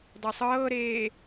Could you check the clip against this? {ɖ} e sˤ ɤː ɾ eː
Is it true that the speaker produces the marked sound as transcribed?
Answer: no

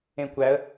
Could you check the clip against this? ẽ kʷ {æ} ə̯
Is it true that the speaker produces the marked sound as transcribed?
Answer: yes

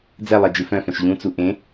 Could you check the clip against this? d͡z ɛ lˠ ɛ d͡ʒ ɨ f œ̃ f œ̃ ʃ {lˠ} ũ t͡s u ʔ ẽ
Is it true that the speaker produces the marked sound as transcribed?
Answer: no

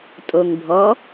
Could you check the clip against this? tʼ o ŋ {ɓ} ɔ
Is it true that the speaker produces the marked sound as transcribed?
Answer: no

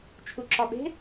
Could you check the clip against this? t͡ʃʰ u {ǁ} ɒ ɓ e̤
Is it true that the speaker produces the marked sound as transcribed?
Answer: yes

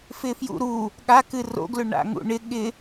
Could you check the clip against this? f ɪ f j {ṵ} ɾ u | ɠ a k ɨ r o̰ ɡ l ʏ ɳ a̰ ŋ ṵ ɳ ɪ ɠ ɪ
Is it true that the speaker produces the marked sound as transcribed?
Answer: yes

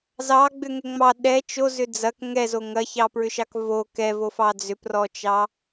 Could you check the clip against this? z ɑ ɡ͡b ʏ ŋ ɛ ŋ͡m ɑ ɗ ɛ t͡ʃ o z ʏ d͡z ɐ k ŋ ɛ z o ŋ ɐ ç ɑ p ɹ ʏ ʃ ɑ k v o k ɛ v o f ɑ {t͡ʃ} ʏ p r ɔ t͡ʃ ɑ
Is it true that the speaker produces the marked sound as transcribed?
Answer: no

